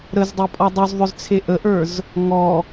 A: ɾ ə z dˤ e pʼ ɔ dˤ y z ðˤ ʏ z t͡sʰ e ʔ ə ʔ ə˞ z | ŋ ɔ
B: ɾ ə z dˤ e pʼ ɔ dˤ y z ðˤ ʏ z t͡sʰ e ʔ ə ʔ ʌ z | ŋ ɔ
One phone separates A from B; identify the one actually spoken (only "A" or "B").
A